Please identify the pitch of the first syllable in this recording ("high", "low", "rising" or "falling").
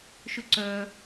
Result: high